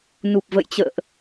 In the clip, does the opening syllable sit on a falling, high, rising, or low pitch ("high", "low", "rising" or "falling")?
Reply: low